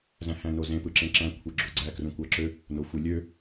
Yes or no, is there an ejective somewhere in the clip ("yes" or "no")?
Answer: no